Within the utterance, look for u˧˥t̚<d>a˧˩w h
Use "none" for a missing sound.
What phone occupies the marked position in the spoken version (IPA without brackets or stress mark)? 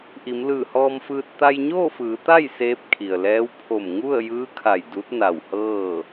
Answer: n